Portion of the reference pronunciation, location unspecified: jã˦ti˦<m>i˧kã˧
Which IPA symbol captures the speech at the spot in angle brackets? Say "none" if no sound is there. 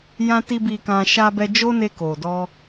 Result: b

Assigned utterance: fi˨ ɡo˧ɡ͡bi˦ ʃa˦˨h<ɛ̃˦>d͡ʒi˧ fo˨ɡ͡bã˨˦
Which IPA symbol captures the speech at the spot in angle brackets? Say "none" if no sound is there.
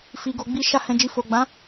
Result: ɛ̃˧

